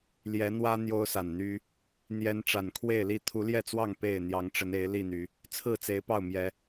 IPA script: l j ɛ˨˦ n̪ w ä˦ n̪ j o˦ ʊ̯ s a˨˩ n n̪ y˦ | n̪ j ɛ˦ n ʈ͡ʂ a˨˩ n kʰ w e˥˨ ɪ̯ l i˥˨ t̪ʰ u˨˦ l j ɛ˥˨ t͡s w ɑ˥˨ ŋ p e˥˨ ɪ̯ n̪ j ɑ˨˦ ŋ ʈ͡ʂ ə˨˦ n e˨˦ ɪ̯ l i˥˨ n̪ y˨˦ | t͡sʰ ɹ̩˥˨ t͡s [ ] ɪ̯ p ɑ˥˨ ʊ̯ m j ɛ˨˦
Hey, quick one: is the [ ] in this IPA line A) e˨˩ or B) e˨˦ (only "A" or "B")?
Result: B